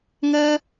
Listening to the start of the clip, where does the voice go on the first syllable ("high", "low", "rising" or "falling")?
high